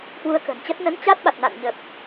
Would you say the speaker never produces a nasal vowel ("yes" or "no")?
yes